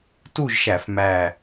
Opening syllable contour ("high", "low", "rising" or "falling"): falling